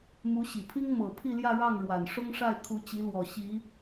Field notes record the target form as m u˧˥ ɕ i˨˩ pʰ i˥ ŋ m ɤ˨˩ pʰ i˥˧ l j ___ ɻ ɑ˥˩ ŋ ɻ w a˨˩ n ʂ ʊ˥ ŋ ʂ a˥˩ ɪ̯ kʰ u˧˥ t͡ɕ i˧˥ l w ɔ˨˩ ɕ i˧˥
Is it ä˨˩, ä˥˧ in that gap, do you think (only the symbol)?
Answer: ä˥˧